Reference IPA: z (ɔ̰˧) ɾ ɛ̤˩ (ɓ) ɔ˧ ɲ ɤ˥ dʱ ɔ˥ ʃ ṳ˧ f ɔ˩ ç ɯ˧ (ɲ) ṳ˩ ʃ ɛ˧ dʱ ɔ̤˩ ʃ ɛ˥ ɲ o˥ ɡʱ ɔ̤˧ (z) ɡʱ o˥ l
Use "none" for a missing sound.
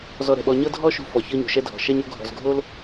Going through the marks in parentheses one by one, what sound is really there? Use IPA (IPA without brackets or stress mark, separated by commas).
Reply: ɔ˧, ɓ, ɲ, z